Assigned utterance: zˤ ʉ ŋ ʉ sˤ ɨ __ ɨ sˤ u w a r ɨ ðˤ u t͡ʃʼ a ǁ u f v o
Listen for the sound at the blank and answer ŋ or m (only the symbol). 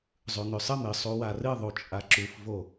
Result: m